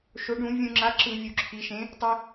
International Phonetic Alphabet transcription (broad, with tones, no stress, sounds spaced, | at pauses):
ʃ o˩˧ ɖ ũ˧˩˧ vʲ ũ˧˩˧ ŋ͡ǁ a˨˥ ǁ ɯ˧˩˧ vʲ u˩˧ ǁʰ i˩˧ ʃ ẽ˨˥ | tˤ e˧